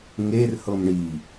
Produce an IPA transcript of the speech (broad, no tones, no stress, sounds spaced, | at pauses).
ŋ e r h ɤ m ɳ i